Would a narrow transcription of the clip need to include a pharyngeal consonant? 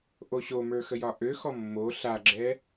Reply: no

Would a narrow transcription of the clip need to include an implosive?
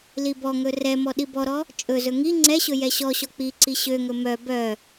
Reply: yes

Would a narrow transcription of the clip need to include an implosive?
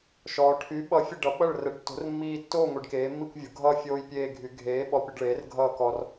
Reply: yes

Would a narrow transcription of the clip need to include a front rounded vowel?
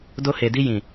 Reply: no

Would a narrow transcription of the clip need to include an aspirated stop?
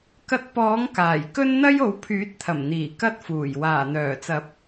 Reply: yes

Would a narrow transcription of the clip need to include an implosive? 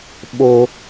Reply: yes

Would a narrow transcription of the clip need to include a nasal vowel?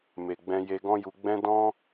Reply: yes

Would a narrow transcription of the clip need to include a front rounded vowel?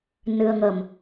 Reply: no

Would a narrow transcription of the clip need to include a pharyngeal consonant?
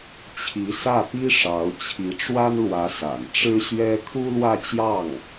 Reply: no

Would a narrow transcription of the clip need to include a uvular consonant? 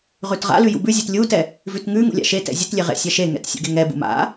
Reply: yes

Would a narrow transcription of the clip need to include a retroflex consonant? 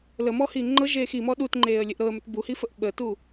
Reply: no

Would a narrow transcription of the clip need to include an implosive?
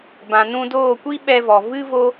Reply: yes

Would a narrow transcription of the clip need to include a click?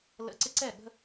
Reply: yes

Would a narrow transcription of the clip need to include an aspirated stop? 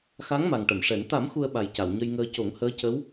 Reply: no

